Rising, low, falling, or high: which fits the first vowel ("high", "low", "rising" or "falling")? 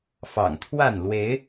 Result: low